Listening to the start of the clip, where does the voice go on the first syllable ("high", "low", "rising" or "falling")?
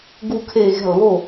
falling